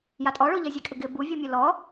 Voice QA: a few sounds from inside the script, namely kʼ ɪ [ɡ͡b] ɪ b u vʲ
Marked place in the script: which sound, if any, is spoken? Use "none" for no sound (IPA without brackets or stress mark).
ɡ